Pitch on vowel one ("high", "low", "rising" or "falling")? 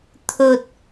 low